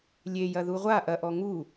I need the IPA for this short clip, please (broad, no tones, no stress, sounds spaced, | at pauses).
lʲ e j ɐ ð u ʁʷ a ʔ ɐ ʔ ɔ ŋ u